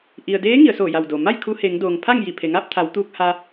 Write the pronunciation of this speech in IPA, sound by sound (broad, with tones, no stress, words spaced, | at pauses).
ʔi˩ə̯deː˧˥ ŋi˩˧ə̯soː˧˩ja˧˩wdoː˩ ma˥˨j kʰu˧he˩˧ŋ doː˩ŋpʰa˥˨ŋji˧˩ pʰe˩ŋaː˥˨p̚t̪ʰa˩˧w t̪uː˧k̚ha˧